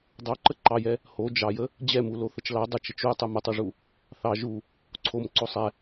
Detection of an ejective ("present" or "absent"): absent